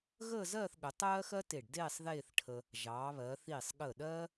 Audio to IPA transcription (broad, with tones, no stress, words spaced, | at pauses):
ɣəː˥˧zɜː˥˧θɠə˩˧ tˤɜː˥xɜ˥te˧˩ɖdeː˥˧sˤ ðeː˥˧θʈʰə˧ | ʒɑː˩˧βɜ˩˧ θiː˧˩sˤɠə˧˩ ɗɜː˥